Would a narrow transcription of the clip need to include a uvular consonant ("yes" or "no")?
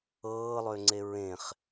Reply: yes